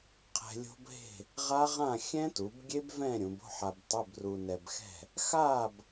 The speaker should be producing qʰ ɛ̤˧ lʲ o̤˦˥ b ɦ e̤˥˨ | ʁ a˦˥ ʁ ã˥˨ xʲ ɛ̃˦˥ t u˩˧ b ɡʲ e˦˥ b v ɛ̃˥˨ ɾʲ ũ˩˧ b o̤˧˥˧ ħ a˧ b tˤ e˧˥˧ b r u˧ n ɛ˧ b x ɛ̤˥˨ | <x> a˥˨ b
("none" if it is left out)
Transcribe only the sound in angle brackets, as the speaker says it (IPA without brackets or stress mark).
x